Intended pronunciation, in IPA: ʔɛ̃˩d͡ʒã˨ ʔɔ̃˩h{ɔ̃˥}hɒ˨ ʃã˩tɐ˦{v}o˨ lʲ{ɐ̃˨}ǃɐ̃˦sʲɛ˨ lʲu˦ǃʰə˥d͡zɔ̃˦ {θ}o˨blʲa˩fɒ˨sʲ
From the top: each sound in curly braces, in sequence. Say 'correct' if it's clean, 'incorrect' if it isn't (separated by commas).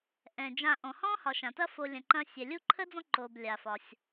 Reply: correct, incorrect, correct, incorrect